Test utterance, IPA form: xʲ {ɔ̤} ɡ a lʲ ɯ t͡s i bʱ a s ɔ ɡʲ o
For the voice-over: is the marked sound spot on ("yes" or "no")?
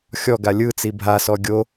no